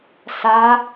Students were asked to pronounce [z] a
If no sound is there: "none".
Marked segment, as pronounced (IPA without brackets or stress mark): s